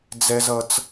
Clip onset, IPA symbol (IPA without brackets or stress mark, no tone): d͡z